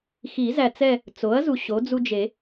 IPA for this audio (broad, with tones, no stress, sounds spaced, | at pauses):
x i˨˩˦ z æ˨ t͡s ɛ˦˨ | t͡s o˩˥ ɐ̯ z u˨ ɕ o˩˥ d͡z u˦ d͡ʒ e˨˩˦